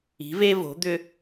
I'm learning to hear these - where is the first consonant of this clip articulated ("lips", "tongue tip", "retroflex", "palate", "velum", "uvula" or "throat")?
lips